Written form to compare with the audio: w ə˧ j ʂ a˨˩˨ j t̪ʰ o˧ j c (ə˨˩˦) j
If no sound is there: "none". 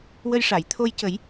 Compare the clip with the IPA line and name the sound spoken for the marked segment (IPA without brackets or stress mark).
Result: ə˨˩˦